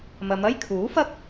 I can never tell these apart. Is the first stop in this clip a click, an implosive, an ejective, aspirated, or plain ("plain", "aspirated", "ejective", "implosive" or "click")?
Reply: aspirated